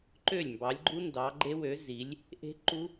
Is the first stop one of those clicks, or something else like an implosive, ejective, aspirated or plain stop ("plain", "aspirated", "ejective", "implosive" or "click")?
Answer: click